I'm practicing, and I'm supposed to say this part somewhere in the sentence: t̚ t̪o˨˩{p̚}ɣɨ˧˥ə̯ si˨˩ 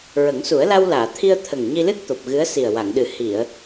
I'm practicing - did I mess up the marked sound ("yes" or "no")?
no